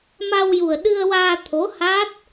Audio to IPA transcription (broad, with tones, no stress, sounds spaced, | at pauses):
m a˧ w j u˨˩ ə̯ ɗ ɨ˧ ə̯ w aː˧ t̪ʰ o˧˥ h a˦˥ t̚